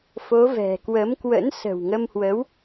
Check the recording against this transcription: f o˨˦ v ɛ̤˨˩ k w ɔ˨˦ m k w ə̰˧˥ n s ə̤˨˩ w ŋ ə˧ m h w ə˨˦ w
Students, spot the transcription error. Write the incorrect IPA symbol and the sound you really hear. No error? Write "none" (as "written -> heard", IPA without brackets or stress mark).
ɔ˨˦ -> ə˨˦